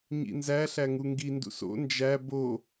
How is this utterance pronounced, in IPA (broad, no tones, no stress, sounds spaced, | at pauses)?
ɲ ḭ n z æ ɬ æ ŋ u ŋ ɡ i n d ṵ s o̰ n d͡ʒ æ b o